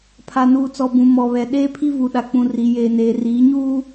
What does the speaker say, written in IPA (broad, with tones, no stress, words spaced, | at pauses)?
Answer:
pʰa˨nuː˨t͡sɔ˨ bũ˨ mɔ˨βɛ˨ ɗeː˦pʰi˦vu˨ɗa˨ k͡pũ˨ri˨ jeː˨neː˨riː˨˦ ɲuː˦